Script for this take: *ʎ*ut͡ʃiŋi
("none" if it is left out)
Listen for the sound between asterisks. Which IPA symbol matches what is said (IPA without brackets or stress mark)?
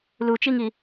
l